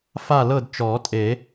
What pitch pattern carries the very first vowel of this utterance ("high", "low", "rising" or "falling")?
falling